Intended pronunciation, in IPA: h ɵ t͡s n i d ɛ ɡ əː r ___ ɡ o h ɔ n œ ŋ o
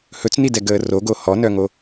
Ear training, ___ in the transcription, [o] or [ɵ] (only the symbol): o